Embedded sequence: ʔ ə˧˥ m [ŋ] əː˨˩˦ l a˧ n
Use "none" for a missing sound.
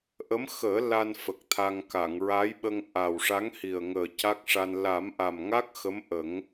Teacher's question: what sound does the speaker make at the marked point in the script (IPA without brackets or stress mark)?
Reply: x